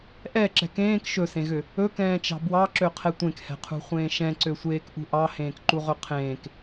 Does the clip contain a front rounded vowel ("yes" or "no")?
yes